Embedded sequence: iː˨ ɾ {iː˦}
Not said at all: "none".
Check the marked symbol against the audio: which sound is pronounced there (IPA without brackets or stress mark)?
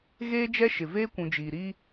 iː˦